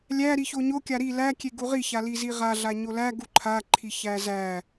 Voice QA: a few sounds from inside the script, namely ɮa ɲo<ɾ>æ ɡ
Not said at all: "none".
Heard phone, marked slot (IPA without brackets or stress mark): l